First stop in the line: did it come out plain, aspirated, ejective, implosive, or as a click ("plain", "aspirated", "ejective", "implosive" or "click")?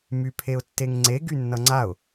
aspirated